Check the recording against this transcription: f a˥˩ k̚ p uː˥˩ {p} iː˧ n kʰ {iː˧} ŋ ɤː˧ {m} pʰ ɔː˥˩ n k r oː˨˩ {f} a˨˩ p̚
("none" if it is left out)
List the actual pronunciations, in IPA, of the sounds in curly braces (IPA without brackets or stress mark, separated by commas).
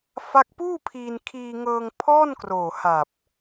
pʰ, iː˧, ŋ, h